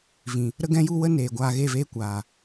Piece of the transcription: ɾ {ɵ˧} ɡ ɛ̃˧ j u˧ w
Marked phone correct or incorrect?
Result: incorrect